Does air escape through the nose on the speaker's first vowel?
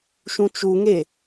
yes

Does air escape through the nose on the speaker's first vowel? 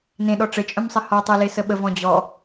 yes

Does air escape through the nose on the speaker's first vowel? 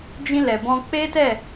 yes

